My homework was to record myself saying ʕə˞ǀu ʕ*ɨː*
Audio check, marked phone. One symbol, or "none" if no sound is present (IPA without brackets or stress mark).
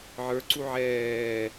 ɛː